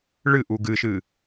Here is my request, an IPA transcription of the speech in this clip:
ɭ ɨ ʔ u ɡ ɨ ʃ ɨ

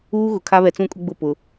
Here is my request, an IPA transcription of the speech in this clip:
uː˦ ɣ ʊ˨ kʰ a˦ β ɛ˨ t͡s ũ˦˨ kʼ ʊ˦ ɡ͡b ʊ˦˨ p ʊ˨

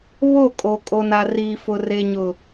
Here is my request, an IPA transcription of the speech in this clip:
β o˦˨ kʼ o˨ kʼ o˨ n a˨ r iː˨ f ʊ˨ r e˨ ɲ ʊ˨

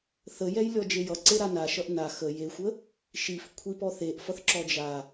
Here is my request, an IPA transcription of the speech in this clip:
θ ə j ɛ j lʲ ɔ d͡ʒ e j ʌ ǀ e ɾ a n a ʃ ʌ ʔ n a x ə j e xʷ ə | ʃ i f kʷʰ i p ɔ θ e ʔ f ʌ θ ǁ ɔ d͡ʒ a

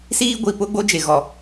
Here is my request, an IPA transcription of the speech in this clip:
s iː˦ ɡʷ i˨ p ʊ˦ ɡ͡b o˦ d͡ʒ e˨ ɣ ɔ˨

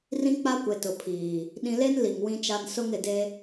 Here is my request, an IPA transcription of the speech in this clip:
r ĩ˦ k͡p a˦ kʷ e˨ t ʊ˨ pʰ iː˨ | ɗ ĩ˨ l e˦ n l i˨ ŋ w ĩ˦ t͡ʃ a˦ n s ʊ˦ ŋ ɪ˨ d e˦

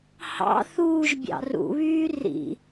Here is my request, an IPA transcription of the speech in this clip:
h ɑ̰ θ uː ʒ bʲ ɑ̰ r ṵ β yː r ḭ

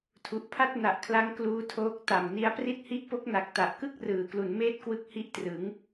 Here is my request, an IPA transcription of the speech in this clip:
tʰ u˨˩ ʔ pʰ a˥˩ t̚ n a˨˩ ʔ kʰ l a˦˥ ŋ k l uː˦˥ tʰ oː˦˥ k̚ t a˨˩ m n i˦˥ a̯ p r i˦˥ t̚ h i˦˥ ʔ p o˦˥ k̚ n a˨˩ k̚ t a˨˩ ʔ k ɯ˥˩ k̚ r ɯː˩˦ k l u˩˦ n m eː˦˥ t̚ k w ɯ˦˥ k̚ h i˦˥ ʔ t r ɯ˩˦ ŋ

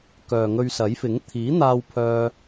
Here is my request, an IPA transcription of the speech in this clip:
k œː˨ ŋ ɵ˧ ɥ s ɐ˨˥ j f ɪ˨˥ ŋ t̪ʰ iː˨˥ n̪ aː˧ w pʰ œː˧

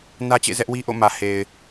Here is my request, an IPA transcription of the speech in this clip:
n ä˦ t͡ɕ ḛ˦˨ z ɛ˦ ʔ w i˦ ʔ o̰˦˨ m ä˨ h e˨ ɪ̯

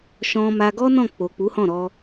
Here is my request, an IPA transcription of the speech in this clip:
ʃ ɔ̃˧ m a˧ ɡ ɔ˦ n ɔ̃˦˨ k͡p o˨ k͡p u˨˦ h ɔ̃˦˨ ɾ ɔ˧

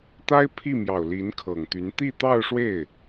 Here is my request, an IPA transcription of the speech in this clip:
t̪ a˥ ɪ̯ pʰ i˥˩ m j ɑ˨˩ ʊ̯ l i˧˥ n kʰ ɤ˨˩ ŋ t̪ y˧˥ n t̪ i˥˧ t̪ ɑ˥˧ ʊ̯ ʂ w e˥˩ ɪ̯

